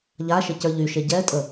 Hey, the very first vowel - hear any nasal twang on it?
no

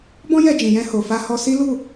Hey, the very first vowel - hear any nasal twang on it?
yes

